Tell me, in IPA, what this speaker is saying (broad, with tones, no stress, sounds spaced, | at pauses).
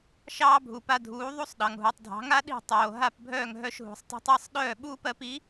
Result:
ʃ ɑː˥ bʱ u˩ p a˧ dʱ uː˩˥ ðˤ u˥ sˤ ɗ ɑ˩ ŋ ɦ u˩ tˤ dʱ ɑ̤˩˥ ŋ a˥ ɗ i̤˥˩ tˤ oː˩ ɦ a˥˩ p bʱ œː˥˩ ŋ ɦ œ˧ ʃ ɦ ṳ˩ sˤ tˤ ṳ˧ tˤ ɑ˥ sˤ ɗ œː˥˩ ɓ uː˥ p ɜ˧ p i˩˥